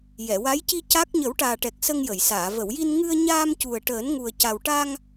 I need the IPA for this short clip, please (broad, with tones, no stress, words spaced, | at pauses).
jɛ˨˩˨wa˧˥jci˧ ca˦˥k̚ ɲə˨˩˦wʈaː˨˩ʈɛ˨˩k̚ sə˧ŋjə˨˩˨jsaː˨˩˨ və˨˩˨wji˧n ŋɨ˧ə̯ɲaː˧mcu˨˩ə̯ ʈəː˨˩˦nŋu˨˩ə̯ ca˨˩wʈa˧ŋ